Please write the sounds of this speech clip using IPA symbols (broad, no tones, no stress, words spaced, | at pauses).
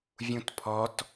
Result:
vʲũtpʰɔt